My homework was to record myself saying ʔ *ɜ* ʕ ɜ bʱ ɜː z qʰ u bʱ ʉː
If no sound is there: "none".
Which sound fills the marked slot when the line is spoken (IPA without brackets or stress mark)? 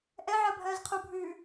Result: ɛ